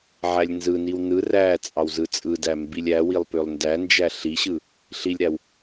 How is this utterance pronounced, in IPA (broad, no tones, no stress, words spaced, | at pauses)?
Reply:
ʕælʲnzɯniw nɯ ræ t͡sʼɑwzɯt͡sʼɯdæ mbilʲæwilˠ pølˠndænd͡ʒæ ɬiɕɯ | ɬilʲɾæw